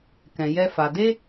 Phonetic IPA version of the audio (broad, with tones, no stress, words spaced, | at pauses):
kɛ̃˧jɛ˦fa˧ de˦